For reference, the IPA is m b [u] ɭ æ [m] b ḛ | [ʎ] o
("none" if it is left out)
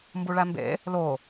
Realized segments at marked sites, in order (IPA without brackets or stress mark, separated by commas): u, m, l